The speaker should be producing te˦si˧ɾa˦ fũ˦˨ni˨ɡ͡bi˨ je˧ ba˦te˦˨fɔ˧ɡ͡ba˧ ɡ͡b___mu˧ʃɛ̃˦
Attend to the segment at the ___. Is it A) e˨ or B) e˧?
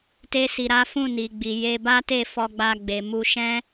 A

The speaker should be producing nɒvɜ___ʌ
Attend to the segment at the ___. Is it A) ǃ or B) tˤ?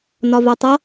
B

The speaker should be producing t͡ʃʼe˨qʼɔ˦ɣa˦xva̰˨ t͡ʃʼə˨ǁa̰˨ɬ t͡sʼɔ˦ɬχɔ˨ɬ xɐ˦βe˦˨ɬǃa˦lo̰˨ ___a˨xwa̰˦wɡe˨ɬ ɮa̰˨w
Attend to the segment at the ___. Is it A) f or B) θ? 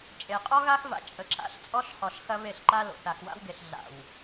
B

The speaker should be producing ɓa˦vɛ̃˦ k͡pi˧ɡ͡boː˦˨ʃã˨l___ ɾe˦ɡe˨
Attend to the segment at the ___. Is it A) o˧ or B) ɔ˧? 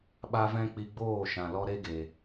B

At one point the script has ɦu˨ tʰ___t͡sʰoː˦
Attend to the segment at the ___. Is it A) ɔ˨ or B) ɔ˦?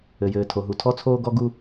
B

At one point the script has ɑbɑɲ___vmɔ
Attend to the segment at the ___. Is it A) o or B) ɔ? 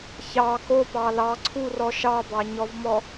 B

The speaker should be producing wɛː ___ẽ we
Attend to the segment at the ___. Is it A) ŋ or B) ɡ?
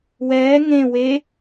A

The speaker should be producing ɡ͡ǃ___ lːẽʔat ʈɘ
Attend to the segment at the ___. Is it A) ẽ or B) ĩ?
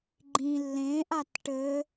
B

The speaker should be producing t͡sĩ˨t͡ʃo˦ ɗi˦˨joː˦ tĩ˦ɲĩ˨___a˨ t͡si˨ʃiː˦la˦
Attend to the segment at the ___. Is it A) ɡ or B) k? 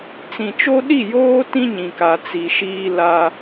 B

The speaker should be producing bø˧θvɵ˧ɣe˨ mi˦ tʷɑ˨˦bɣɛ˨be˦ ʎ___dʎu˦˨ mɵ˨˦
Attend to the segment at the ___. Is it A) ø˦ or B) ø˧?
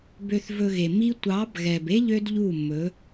A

